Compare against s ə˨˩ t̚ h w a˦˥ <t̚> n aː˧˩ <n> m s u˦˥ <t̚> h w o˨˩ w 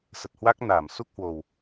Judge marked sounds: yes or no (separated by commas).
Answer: no, no, no